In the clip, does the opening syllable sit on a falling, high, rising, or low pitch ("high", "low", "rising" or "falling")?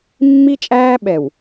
high